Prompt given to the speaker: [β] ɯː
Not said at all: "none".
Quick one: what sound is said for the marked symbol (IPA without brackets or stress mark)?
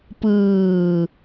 p